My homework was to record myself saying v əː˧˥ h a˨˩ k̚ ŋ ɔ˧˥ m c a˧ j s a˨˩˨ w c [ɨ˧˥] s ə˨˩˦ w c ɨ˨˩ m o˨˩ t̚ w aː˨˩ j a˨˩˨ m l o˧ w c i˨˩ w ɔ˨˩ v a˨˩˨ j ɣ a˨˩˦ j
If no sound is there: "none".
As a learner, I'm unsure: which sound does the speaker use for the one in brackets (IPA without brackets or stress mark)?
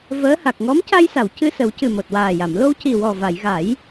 ɨ˧